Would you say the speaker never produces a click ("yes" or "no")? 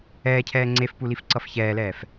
no